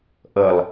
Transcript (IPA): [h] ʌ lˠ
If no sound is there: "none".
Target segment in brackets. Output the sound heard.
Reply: ʔ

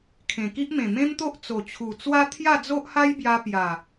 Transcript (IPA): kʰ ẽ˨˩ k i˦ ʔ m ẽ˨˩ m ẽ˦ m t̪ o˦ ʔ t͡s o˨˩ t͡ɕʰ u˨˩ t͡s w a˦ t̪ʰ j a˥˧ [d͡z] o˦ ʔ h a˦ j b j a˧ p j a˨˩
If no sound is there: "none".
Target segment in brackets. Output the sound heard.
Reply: d͡z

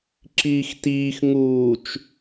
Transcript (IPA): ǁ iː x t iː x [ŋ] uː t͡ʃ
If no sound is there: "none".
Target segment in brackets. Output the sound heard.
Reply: ŋ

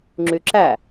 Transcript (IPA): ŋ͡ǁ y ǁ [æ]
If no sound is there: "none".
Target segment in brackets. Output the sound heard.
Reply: æ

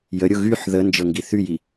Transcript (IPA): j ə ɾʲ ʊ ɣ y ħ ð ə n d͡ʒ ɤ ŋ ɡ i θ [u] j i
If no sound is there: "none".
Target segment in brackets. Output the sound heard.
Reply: y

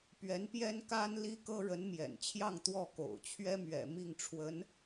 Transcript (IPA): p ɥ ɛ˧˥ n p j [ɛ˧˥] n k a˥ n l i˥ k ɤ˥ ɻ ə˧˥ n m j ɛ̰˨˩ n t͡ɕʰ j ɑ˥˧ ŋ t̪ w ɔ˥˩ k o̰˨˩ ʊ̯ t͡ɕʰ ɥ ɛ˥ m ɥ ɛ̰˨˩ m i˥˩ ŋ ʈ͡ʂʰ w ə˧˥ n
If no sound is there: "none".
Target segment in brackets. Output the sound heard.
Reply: ɛ˥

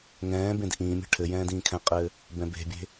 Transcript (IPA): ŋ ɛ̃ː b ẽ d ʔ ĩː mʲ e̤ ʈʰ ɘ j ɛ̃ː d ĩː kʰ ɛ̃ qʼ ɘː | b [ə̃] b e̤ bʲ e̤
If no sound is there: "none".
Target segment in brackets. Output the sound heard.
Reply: ɛ̃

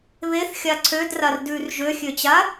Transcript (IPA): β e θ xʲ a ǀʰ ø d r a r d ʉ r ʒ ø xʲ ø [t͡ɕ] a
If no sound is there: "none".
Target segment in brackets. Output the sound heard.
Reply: t͡ɕ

